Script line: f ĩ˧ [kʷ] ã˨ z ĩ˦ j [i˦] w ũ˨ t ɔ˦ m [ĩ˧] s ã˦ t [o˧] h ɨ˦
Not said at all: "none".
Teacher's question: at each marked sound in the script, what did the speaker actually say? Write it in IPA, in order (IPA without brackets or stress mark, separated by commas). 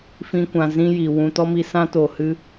kʷ, i˨, i˧, o˨